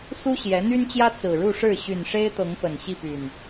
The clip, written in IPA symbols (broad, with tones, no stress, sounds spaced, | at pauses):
s u˦ ɕ j ɛ˨˦ n̪ y˦ n t͡ɕ j ä˦ t͡s ɹ̩˨˩ ɻ u˥˨ ʂ ɻ̩˥˨ ɕ y˨˩ n ʂ e˦ ɪ̯ t̪ ɤ˨˦ ŋ p ə˨˩ n ɕ i˥˨ p y˨˩ n